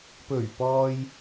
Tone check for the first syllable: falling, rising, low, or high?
low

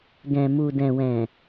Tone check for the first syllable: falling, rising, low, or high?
low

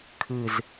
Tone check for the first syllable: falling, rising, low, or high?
low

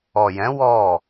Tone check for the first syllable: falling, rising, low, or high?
low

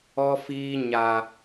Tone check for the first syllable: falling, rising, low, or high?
high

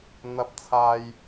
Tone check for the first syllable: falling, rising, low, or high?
high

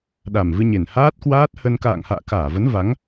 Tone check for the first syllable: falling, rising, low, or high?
low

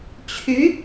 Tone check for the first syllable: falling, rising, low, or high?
rising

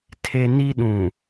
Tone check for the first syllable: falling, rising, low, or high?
high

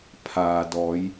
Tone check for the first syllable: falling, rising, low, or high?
low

